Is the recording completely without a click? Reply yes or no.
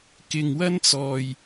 yes